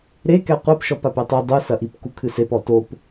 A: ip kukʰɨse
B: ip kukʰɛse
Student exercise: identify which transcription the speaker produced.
A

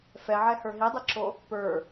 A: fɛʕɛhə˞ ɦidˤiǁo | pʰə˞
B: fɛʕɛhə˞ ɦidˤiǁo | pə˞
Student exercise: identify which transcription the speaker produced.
B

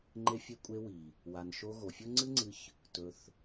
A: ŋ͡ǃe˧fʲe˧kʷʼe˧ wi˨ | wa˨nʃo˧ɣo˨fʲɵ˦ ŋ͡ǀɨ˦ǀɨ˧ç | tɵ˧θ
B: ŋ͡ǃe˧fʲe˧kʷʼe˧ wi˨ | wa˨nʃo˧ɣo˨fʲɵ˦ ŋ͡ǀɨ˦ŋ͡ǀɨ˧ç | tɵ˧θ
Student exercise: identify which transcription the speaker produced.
B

